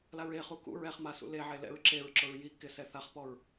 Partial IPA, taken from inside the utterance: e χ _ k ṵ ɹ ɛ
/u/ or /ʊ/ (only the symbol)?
u